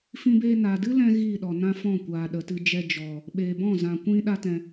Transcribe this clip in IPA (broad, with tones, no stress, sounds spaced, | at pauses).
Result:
f ĩ˧ b eː˧ n a˨ d ɨ˦ l ɛ̃˦ ɣ iː˦˨ ɗ ɔ˨ n ã˦ f ɔ̃˦˨ kʷ aː˨ ɗ ə˨ t ɨ˧ d͡ʒ ɛ˧ d͡ʒ ɔ˨ | ɓ eː˨ b ɔ̃˦˨ z ã˨ kʷ ĩ˧ ɗ a˦ t ɛ̃˧